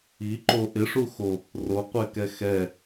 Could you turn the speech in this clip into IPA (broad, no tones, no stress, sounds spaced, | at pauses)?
i ǃ o ʔ ɪ ʂ u x o | r o qʷ ɛ k ɛ x ɛ